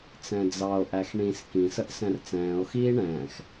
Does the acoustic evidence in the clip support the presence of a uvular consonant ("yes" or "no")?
no